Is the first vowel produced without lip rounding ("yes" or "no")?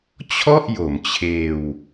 no